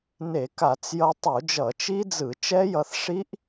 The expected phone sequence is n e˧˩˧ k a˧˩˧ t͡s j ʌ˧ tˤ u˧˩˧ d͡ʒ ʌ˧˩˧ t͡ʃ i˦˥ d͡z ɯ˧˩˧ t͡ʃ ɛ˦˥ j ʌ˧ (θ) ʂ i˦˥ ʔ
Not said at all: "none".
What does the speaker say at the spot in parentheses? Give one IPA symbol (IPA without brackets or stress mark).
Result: θ